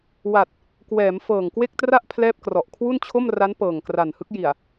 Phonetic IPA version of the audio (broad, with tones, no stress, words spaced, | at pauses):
wa˨˩t̚ | kwɛː˩˦mfɤː˨˩ŋkwe˥˩k̚tra˥˩ʔ pʰlɛː˥˩p̚krɔ˨˩ʔ kʰwu˥˩nt͡ɕʰo˥˩mra˦˥n pɤː˨˩ŋkra˨˩nhɯ˦˥k̚ji˨˩a̯